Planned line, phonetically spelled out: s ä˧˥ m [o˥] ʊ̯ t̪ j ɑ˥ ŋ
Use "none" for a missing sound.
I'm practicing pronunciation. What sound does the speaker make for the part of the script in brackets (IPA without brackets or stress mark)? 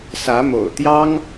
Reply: o̰˨˩